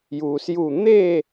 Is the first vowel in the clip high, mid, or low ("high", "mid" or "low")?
high